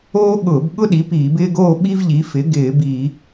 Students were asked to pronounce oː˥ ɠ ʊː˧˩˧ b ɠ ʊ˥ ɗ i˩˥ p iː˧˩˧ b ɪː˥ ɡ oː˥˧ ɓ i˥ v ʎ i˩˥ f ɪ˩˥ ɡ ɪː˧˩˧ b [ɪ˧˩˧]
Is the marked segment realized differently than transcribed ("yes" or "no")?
yes